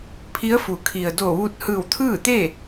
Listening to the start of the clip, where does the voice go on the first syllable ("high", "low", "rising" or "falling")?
rising